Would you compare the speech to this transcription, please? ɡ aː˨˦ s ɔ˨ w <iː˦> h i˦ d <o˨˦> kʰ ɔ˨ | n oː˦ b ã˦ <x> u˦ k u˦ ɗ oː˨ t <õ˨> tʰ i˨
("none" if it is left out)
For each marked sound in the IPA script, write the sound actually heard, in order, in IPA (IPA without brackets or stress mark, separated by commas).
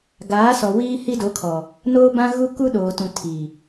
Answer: iː˦, o˨˦, ɣ, ũ˨